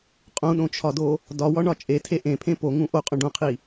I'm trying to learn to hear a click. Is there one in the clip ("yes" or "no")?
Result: no